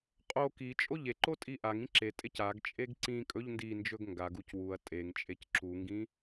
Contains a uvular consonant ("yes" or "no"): yes